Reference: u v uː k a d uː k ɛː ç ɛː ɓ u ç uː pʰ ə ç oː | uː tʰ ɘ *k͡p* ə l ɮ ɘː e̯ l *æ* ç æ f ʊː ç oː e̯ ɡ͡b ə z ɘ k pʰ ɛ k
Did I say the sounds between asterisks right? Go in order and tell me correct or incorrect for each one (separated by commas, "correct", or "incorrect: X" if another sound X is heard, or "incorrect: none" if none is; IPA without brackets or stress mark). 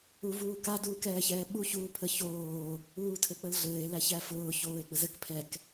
correct, correct